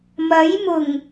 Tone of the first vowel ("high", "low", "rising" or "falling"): rising